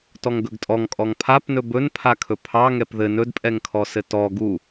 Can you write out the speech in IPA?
tɔŋɡɵɡtʼɔŋ kʼɔŋpʰapnɵ bɵnpʰakʰɵ pʰɑ ŋɛpðɘ nɵdpʼɛŋkʰɔ sɘtɔ ɡu

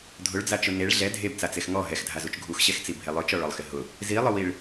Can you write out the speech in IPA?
dʱʊɭd͡zat͡ʃʊ neɭ ɮɛ dʱebt͡sat͡sex ŋɔ ɦɛxdʱazut͡ʃ ɡʱuxɕɛxt͡sibʱe lˠʊt͡ʃɔɭɔlˠxɪ ɦʊ | zilˠʊwiɭ

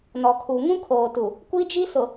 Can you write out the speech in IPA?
nɔ˨kʰu˨ ŋũ˦kʰoː˨tu˨ | kʷi˦d͡ʒi˦ sʊ˨

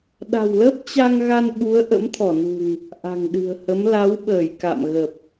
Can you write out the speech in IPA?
ɗa̤˨˩wləː˦˥p̚ t͡ɕa˧ŋɣa˧n ɓu˨˦ə̯ʔə̰˧˥m t̪ʰɔ˧˩nṳ˨˩ŋ | ʔa̤˨˩ŋɗɨ̤˨˩ə̯hə˨˦m la˨˦wɓəː˧˩j ka̰˧˨mɣə˨˩p̚

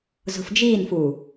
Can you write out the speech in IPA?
zo̤fd͡ʒiːnfuː

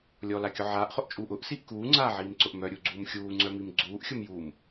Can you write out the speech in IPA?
lʲɔlakʲʊ ʕaːʔχʊʔt͡ʃʼuːʔ ʊʔsiʔ kuːŋ͡ǀaːʕiːmǀʊʔ mœɾʲuɡ͡ǀuːm xʲuːŋ͡ǀœmim ɡ͡ǀuːʔxʲʊmjuːm

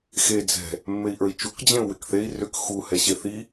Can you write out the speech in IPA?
xe d͡zɛ̤ | mːei̯ʔə˞i̯t͡ʃuk d͡ʑẽu̯wɪkθei̯ rʏk xu hɛɕeθi

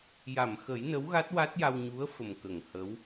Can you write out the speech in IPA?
ja˨˩˨mxə˨˩˦j nə˧˥wɣa˦˥t̚wa˦˥t̚ja˧w ɲu˧˥ə̯fə˨˩m kə˨˩˨ŋhə˧˥w

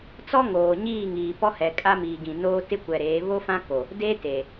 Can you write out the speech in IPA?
t͡sɔ˦ŋoː˨ ɲiː˦˨ŋiː˨pɔ˦hɛ˨ kʼa˦miː˨ɡĩ˨ noː˦tɪ˦kʷɛ˨ɾeː˨˦ βo˦fã˦ko˨ | de˦te˨

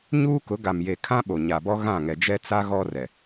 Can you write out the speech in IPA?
ɲuː˦kʊ˨˦ ɡa˨m je˨kʰã˦ ɓo˨ɲa˨bɔ˦ ɣã˦˨ŋɛ˨ d͡ʒɛ˦t͡sa˦ ɣɔ˦rɛ˨

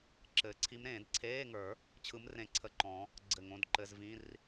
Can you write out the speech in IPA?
ǁɘː˨˩˦ǀʰi˧˥mɾẽː˨˩˦d ǀʰeː˧˥˧ŋə˞˨˩˦ | t͡ɕʰɯ˧˥mrẽ˧˩ǀʰə˧˩ǃɔ̃˨˩˦ | ɡ͡ǀɘ˧˩ŋõ˧˥˧dǃɘ˧˥˧zvĩ˧˥˧r

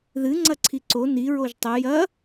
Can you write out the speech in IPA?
ðɨ ŋ͡ǀɐǀʰiǀo ni ɹoʒtˤɵ jɐ

